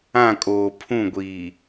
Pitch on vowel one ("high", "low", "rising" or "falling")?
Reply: falling